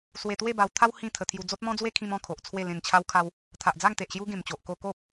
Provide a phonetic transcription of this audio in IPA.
s w e˧ t̪ w e˥˧ b a˧ w t̪ʰ a˦ w h ĩ˥˧ t̪ʰ ə˧ t̪ʰ j u˧ d͡z o˦ t̚ m ɔ̃˦ d͡z w e˦ kʰ ĩ˧ m ɔ̃˧ kʰ o˨ ʔ t͡sʰ w e˥˧ l ẽ˨˩ n t͡ɕʰ a˧ w kʰ a˧ w | t̪ʰ a˨ ʔ d͡z a˥˧ ŋ t̪ e˨ ʔ ɕ j u˦ ɡ ẽ˨˩ m t͡ɕ o˨ ʔ k o˧ k o˦ p̚

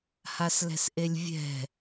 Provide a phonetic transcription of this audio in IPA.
h a s l ɛ̤ s ʔ e lʲ vʲ ɛ̤

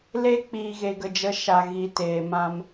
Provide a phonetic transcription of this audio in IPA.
l e˧ k͡p iː˨ ɣ e˨ ɡ ə˨ d͡ʒ ə˨˦ ʃ a˨ ɣ i˨ t eː˨ m ã˧ m

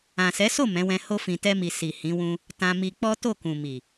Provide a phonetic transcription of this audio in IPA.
ã˨ s ɛ˨˦ s o˦˨ m ɛ̃˨˦ w ɛ̃˧ h o˧ f ĩ˨ t ɛ˧ m i˨ s i˨ h ĩ˨˦ w ũ˦ | t ã˧ m i˧ k͡p ɔ˦ t o˦˨ k ũ˨ m i˨

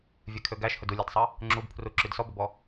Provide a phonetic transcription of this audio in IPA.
vʲ e kʰ ø ɡ æ ʃ h ɵ d u lʲ æ d sˤ ɑ | ŋ͡ǁ u b pʰ r u ǁ y d s ɔ b ɵ b ɔ

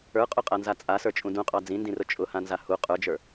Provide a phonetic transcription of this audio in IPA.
ə˞ qʼ ʊ qʼ a n z a t͡sʼ a s ə˞ t͡ʃʼ ũ d ũ qʼ ɑ d͡z ĩ n d ĩ r ʊ t͡ʃʼ ʊ h ã n z a h u qʼ ə˞ d͡ʒ ə˞

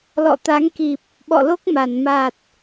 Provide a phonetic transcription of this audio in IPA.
l ɔ̰˧˨ t̪ a˨˦ ŋ k i˨˩ p̚ | ɓ ɔ̰˧˨ l o˦˥ k̚ m a˧˩ n m a˨˩ t̚

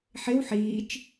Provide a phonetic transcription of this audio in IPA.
ħ ɪ w ħ iː t͡ʃ

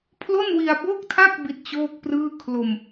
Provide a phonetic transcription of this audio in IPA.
pʰ l o˥˩ n w i˧ a̯ b o˥˩ k̚ tʰ a˥˩ k̚ b i˦˥ t̚ t͡ɕ oː˥˩ k̚ p r ɯː˥˩ kʰ l o˧ m

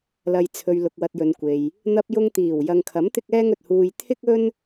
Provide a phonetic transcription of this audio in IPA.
l ɐ˨ j t͡sʰ ɵ˨ ɥ l ʊ˨ k̚ w ɐ˧ t̚ j ɵ˨˧ n kʷ e˨ j | n̪ ɐ˧ p̚ j ʊ˧ ŋ t̪ iː˨˩ w j ɐ˨ ŋ kʰ ɐ˨˥ m t̪ ɪ˥ k̚ ɛː˥ ŋ ɵ˨ t̚ h uː˧ j t̪ʰ ɪ˥ k̚ ɵ˥ n

